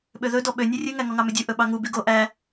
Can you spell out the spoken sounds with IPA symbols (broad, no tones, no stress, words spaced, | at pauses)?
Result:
ɓøðɵdɔ ɓø nʲørʲʉŋæ ŋɔŋɑmødʲu ʔɵɓɑŋu byɡo ʔæ